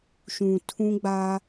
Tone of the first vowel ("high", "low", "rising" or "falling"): low